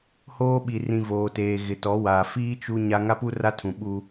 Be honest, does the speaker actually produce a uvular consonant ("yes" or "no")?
no